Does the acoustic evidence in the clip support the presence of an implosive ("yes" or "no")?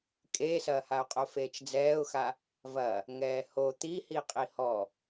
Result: no